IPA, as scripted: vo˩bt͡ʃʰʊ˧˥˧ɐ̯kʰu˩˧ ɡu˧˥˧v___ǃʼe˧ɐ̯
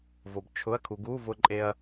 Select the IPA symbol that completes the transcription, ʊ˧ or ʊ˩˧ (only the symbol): ʊ˧